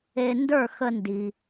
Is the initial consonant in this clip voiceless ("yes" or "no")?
no